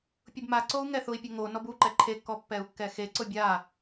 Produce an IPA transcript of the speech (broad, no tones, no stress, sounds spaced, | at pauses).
pʲ ʊ b m a ǀ o u̯ ŋ ɛ θ ʊ i̯ pʲ ɛ ŋ o n ɔ b u ǃ ɛ ǃʰ e kː ɔ pː ɛ u̯ kː ɛ x e ǀ ʊ bʲ a